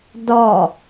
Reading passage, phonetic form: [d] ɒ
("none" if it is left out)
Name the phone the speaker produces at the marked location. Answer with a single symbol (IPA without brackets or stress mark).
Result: d